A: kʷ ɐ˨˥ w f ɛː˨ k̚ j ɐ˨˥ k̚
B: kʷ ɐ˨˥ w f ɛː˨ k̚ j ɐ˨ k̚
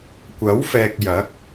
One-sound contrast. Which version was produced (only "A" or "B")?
A